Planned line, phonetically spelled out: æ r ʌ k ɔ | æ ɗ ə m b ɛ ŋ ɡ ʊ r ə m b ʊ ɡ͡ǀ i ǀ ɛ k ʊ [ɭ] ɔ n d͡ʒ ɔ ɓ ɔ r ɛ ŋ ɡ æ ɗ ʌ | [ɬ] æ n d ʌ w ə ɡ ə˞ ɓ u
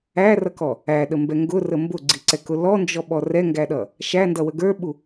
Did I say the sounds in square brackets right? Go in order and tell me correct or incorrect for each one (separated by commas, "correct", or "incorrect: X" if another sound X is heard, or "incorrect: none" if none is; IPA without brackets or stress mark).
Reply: incorrect: l, incorrect: ʃ